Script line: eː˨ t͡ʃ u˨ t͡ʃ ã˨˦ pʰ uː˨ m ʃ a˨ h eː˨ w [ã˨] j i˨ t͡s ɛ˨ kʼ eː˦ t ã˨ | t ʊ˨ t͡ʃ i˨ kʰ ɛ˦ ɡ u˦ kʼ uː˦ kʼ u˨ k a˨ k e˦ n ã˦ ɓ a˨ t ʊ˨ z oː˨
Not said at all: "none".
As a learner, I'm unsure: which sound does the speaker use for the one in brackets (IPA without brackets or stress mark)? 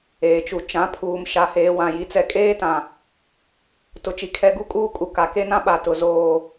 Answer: ã˨